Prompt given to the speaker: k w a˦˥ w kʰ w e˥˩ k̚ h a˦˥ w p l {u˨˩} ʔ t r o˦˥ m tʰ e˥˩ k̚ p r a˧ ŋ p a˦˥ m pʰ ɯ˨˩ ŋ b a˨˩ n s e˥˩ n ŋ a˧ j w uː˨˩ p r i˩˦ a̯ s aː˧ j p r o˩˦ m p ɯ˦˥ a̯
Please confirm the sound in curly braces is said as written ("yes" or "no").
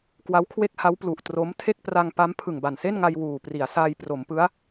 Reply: yes